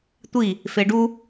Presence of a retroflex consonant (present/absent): present